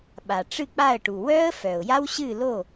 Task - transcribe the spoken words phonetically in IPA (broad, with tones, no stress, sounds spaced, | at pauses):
ɓ a˩ ʈ͡ʂ ɨ˥˩ k͡p a˥˩ ə̯ ʈ u˩ w œ˦˥ ə̯ f œ˩ ʊ̯ j a˦˥ w ɕ ɨ˥˩ l o˥˩